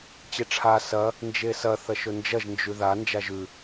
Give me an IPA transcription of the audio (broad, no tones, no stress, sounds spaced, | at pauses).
t͡ɕ e ʈ͡ʂʰ a s ɐ | n d͡ʒ e s ɐ θ ɐ ʃ ɵ n d͡ʒ ɐ ʒ n d͡ʒ ʉ ð a n d͡ʒ a ʒ ʉ